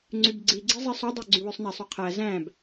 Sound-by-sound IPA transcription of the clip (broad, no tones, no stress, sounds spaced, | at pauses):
ŋ͡ǀ y b ɡ͡ǀ i ɡ͡ǀ i zˤ i sˤ o dˤ ø ɡ͡ǀ y w ø sˤ n æ sˤ y qʰ æ z æ̃ b